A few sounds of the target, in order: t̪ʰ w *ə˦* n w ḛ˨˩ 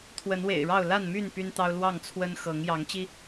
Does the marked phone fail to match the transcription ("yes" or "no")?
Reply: yes